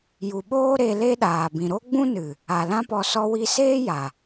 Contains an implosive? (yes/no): yes